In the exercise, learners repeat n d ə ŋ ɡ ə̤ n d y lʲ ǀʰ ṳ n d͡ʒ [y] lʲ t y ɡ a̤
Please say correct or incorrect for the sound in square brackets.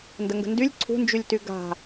correct